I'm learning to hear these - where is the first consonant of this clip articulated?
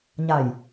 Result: palate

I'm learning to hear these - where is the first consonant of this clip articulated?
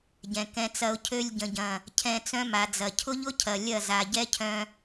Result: palate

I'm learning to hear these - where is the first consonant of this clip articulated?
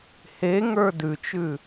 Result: throat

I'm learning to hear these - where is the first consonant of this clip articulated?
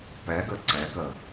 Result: lips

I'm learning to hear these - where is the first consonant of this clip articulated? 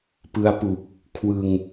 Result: lips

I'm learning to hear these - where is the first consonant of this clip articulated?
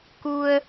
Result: velum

